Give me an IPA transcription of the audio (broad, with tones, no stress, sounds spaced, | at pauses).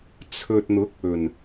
t͡sʰ ɵ˨ t̚ n̪ ʊ˨˥ k̚ ɵ˨˩ n